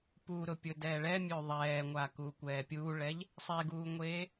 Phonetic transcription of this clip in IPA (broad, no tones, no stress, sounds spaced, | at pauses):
p u ɾ ʊ pʲ ʊ d ɛː ɭ ɛ mʲ ø ðˤ ɛː ŋʷ a k u kʷ ɛː pʲ uː ɭ ɛ ʎ | sˤ e ɡ uː ŋʷ eː